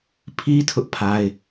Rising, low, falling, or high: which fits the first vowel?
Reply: high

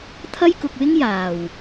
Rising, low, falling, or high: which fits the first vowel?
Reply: high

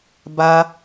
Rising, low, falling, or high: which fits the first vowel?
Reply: high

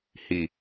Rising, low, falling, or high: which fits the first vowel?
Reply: low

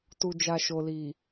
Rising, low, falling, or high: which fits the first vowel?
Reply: low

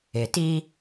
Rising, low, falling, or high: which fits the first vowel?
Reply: low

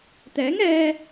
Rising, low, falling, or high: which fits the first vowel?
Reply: rising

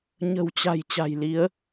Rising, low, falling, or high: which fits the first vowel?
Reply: low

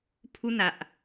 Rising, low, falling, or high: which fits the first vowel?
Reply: high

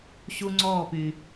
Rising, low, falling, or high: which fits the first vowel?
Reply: high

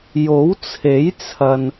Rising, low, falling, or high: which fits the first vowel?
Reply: rising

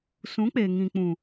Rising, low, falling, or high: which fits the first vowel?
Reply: rising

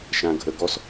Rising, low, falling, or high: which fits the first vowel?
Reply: low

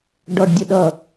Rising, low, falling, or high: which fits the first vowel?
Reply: high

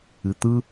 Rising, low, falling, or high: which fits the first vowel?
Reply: low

